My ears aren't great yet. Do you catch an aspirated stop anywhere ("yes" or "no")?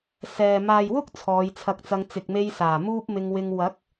yes